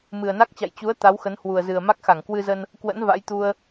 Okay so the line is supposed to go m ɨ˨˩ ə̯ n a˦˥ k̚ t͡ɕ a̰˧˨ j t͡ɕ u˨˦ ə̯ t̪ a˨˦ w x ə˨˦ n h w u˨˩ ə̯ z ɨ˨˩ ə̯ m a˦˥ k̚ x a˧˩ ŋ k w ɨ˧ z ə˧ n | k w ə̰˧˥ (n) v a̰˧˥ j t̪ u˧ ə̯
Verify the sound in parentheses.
correct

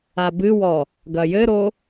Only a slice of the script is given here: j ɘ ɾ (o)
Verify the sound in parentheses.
correct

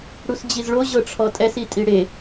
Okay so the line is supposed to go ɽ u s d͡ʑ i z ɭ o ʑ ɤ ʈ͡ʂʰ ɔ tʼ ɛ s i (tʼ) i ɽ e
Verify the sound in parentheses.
correct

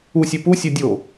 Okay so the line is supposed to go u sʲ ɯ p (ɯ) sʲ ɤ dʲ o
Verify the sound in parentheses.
incorrect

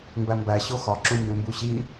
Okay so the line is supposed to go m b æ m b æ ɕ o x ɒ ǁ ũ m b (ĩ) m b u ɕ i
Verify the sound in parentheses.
incorrect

